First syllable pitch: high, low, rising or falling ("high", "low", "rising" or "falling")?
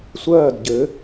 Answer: falling